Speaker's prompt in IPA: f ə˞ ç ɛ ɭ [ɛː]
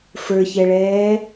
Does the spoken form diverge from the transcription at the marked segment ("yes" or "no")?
no